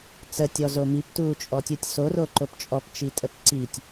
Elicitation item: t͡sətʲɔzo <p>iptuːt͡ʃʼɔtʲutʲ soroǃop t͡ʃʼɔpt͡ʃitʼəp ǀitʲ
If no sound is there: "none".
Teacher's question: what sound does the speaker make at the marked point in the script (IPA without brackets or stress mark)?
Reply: m